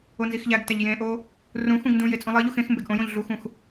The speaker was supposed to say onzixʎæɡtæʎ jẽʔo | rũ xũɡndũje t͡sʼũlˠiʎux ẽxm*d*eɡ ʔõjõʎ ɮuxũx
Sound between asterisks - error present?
yes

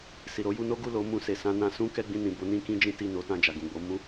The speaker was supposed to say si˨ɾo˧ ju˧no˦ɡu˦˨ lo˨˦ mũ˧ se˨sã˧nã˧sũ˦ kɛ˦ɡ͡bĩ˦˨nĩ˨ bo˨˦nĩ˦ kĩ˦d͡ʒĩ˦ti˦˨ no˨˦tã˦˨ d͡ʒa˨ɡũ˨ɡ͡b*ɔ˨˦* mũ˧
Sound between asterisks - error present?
yes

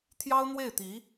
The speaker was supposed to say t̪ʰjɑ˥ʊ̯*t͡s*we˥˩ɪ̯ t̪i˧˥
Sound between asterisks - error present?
yes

